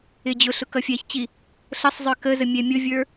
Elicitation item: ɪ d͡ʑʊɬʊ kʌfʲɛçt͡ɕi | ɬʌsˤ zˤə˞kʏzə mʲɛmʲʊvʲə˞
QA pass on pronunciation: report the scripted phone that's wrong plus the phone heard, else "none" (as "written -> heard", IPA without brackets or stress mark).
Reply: ʏ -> ə